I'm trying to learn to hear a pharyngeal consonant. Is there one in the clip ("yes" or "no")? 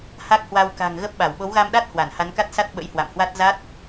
no